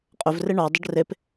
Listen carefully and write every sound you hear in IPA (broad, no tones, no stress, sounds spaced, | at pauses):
qʼ ɵ v r e ɳ ɔ dˤ ə ɖ r e p